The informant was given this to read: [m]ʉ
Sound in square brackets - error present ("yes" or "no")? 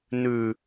yes